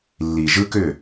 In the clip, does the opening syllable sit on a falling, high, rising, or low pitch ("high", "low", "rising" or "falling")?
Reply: low